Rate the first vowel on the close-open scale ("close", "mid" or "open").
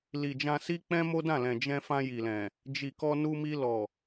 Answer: close